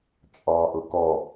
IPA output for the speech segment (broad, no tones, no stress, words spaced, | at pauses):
t͡ʃʼɑ ʔʊkɔ